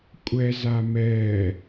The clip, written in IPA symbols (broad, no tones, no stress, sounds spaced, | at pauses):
kʷʼ ɛ z a m ɛː